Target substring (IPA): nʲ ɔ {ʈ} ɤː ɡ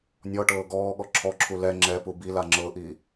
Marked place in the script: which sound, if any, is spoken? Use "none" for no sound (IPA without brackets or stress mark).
ʈ